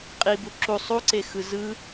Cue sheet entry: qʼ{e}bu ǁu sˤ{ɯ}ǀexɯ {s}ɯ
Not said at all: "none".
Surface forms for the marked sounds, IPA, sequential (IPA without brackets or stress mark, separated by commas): i, u, z